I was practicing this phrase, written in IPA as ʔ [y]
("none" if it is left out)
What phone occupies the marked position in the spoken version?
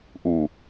u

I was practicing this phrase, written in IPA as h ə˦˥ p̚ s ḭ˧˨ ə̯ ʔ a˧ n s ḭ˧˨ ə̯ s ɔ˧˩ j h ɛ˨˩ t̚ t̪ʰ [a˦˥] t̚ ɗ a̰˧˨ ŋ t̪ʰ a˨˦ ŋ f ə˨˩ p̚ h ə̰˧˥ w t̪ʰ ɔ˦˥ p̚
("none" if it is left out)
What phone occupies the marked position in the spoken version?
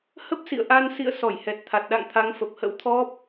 a˨˩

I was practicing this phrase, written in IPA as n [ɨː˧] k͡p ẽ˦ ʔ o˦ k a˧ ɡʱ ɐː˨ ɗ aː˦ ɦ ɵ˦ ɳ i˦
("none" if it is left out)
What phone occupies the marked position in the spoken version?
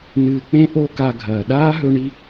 ɨː˧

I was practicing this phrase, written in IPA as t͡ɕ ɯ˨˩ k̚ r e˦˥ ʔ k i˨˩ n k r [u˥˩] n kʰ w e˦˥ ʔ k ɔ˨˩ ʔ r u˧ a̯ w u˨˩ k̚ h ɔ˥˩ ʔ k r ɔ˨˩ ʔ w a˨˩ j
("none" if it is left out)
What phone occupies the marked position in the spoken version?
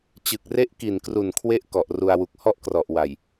u˨˩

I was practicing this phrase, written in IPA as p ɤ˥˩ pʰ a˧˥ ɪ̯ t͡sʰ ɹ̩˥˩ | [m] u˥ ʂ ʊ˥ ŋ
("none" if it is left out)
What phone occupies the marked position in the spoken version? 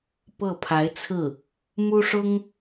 m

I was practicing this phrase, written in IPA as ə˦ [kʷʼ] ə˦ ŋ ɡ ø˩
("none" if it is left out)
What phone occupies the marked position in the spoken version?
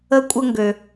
kʷʼ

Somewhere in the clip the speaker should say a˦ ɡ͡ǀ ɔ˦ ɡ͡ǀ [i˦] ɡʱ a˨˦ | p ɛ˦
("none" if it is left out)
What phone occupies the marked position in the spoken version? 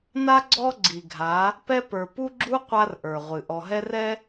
i˨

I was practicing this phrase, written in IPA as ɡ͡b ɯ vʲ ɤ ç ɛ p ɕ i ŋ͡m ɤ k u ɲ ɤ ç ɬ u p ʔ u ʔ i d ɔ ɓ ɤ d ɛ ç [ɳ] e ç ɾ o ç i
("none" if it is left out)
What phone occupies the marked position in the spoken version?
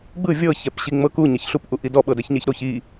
ɲ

